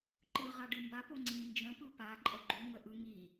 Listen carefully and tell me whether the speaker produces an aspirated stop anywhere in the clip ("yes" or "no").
no